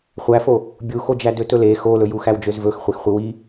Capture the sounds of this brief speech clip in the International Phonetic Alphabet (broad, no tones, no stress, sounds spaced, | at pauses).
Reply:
χʷ æ f o | bʲ u x o d͡ʒ æ d ø t ɵ l e x o l ɵ j u x æ w d͡ʒ ø z v ɵ x χʷ e x χʷ i w i